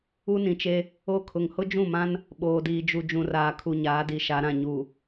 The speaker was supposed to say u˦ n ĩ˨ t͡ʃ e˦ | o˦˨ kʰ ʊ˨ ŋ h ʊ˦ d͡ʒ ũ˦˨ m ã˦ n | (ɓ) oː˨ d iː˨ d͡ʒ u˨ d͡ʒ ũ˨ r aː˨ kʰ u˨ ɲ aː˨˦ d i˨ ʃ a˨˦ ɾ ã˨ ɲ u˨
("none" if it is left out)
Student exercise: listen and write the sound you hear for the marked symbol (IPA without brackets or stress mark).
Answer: ɓ